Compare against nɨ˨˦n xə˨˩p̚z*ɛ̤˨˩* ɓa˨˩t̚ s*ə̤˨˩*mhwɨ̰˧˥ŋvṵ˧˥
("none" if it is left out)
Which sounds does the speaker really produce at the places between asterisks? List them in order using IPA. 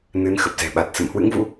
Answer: ɛ̤˨˩, ə̰˧˨

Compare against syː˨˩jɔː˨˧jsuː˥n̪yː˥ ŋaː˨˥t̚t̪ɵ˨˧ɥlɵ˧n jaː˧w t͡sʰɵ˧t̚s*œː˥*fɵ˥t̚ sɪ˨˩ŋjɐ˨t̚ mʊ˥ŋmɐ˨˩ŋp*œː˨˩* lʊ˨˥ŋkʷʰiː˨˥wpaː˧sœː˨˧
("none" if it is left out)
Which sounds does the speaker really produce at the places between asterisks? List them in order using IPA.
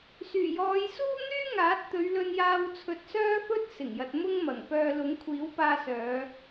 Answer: œː˥, œː˧

